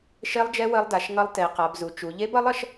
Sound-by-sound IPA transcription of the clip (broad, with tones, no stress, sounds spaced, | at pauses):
ʃ e˦˥ lˠ d͡ʒ ɛ˦˥ w ə˦˥ lˠ d a˩˧ ʃ ŋ ʌ˦˥ lˠ t e˩˧ q a˩˧ b z u˩˧ t͡ʃ u˩˧ ʎ e˦˥ b ʌ˦˥ lˠ ʌ˩˧ ʃ